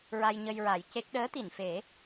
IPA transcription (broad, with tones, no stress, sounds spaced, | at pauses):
ɹ a˧ j ɲ ə˧ j ɹ a˨˩˦ j c e˦˥ k̚ ɗ əː˧˥ t̪ i˨˩˨ n f e˨˩˦